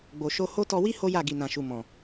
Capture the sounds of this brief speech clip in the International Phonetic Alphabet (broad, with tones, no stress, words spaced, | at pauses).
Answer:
ɡ͡bo˨ʃo˧ ho˦ tɔ˧wi˦ ho˦ja˦˨ ɡi˨nã˨ʃu˨ mɔ̃˨